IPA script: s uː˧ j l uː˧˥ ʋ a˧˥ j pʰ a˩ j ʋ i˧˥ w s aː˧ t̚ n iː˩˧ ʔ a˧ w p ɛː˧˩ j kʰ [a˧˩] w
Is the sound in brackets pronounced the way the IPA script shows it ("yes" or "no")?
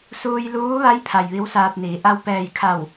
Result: yes